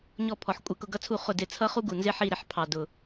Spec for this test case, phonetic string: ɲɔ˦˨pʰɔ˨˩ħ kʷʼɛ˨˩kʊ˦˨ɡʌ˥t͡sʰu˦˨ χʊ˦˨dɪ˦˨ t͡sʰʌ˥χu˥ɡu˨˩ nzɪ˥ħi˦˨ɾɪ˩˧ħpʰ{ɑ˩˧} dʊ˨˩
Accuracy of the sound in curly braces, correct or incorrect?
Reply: incorrect